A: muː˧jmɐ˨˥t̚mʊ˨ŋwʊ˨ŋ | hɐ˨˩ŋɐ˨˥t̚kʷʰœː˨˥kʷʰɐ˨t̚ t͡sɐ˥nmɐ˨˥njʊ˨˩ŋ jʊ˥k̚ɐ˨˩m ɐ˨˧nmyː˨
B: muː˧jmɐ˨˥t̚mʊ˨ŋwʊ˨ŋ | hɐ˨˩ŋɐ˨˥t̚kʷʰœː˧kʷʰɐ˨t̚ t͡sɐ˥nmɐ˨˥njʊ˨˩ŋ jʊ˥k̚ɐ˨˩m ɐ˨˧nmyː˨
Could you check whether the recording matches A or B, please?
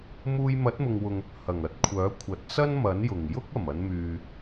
A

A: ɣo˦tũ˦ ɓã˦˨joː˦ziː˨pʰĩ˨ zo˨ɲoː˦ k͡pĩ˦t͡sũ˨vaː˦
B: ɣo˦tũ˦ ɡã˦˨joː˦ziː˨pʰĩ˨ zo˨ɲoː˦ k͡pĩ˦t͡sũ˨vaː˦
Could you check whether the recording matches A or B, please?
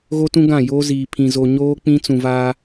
B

